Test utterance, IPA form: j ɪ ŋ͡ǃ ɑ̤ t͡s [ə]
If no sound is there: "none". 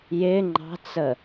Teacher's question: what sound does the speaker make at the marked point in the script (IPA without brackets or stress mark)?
ə